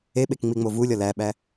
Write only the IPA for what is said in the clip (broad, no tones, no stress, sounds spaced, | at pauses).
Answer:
e ɓ e k ŋ͡m i ŋ͡m o v u lʲ ɒ l æ ɓ æ